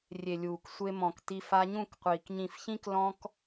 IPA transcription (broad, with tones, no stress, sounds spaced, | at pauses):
rʲ e˨ lʲ uː˨ k sʷ e˧ m ɔ̃˨ k t i˧ f a˧ ɲ ũ˦˨ k qʷ iː˨ k ɲ ĩ˨ f ç ĩ˧ k l ɔ̃˧ k